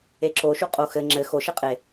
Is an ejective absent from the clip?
no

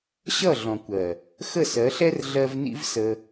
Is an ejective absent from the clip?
yes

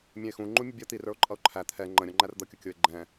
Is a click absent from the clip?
no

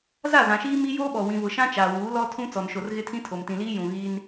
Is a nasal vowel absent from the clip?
no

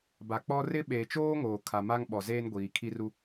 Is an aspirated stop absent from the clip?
no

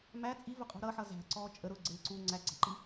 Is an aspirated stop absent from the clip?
yes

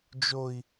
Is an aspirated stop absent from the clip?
yes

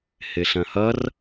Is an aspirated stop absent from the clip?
yes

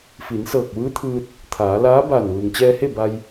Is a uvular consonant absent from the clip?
yes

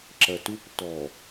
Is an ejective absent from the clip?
yes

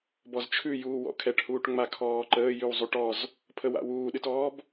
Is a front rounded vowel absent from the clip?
yes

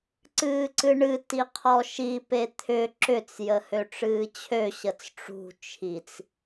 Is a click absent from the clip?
no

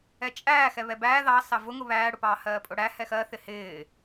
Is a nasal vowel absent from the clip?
yes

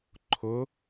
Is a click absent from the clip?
no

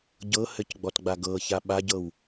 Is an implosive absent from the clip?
no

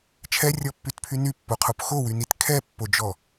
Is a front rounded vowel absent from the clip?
no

